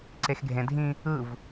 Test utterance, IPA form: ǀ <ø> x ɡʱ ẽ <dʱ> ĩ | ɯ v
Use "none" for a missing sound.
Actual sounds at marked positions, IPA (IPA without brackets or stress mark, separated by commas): e, dʱ